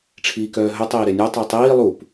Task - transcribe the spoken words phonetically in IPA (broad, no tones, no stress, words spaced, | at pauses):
ʈ͡ʂʰiːkœːɦɵ tˤiːɾenʲœ tˤitˤiː lˠup